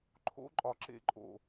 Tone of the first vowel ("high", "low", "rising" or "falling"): high